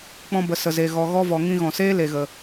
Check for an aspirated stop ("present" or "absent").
absent